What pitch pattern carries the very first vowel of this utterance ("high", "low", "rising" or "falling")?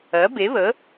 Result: rising